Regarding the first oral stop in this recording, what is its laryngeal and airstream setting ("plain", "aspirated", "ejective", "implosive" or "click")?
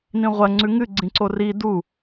click